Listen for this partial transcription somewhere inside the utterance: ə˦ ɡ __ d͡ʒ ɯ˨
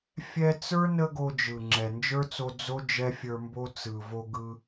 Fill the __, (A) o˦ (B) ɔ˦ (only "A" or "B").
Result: A